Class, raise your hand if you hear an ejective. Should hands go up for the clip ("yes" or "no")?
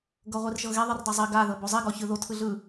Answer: no